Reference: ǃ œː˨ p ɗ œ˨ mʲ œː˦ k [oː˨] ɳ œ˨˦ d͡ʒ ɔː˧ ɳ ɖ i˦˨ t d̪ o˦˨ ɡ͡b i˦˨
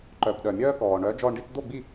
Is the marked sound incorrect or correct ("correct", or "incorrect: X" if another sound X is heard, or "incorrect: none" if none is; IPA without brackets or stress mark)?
incorrect: ɔː˨